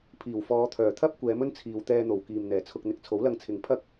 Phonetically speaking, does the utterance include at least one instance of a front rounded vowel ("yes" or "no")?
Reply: yes